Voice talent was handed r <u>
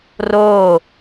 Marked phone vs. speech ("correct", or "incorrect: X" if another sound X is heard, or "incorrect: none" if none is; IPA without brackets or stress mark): incorrect: o